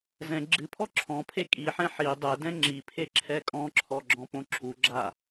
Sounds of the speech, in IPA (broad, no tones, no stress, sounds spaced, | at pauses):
z ɛ̃ ɡ͡ǁ ɨ pʰ ɔ ǁʰ ɔ̃ pʰ e kʼ i ħ ɛ̃ ħ i dˤ ɛ d ɛ̃ ŋ͡ǁ i pʰ e ǁʰ ɛ kʼ ɔ̃ ǁʰ ɔ ɡ͡ǁ ɔ̃ p õ ǁʰ u ɡ͡ǁ a